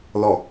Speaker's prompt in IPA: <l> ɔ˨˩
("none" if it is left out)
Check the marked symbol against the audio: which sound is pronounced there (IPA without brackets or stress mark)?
l